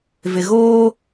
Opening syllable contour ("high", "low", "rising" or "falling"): low